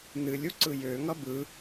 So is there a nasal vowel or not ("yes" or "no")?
no